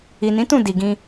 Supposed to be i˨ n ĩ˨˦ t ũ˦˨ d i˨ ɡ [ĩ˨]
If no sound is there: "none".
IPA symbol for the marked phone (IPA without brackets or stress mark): ĩ˧